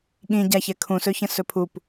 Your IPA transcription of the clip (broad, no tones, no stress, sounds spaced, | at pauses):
ɠ ĩ ɟ a ç ɛ kʰ ũ s ɵ ç ə̃ s ɵ pʰ u p